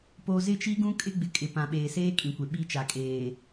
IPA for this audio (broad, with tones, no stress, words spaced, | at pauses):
po˨zɪ˦˨t͡ʃi˦ɡũ˦ kʼɪ˦ɡ͡bɪ˨ kʼɪ˨pã˨ɓeː˨ seː˦ kʼĩ˨kʷe˨ ɓi˦˨t͡ʃa˨kʼeː˨